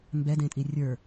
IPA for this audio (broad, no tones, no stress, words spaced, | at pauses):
mbɛdẽtʼi rʲə˞